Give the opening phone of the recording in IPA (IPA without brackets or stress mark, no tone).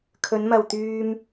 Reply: kʰ